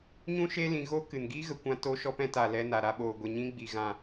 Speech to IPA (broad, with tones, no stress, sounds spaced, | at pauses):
ɲ ũ˦ ʃ eː˦ l ĩ˧ ɣ o˦ k ɨ˨ n ɡ i˦ ɣ ə˨ kʷ ã˧ t o˧ ʃ ɔ˧ p ɛ̃˧ t a˨ l ɛ˧ n a˨ ɾ a˧ ɓ oː˨ ɡʷ e˨ ɲ ĩ˧ ɡ͡b i˨ ɣ ã˨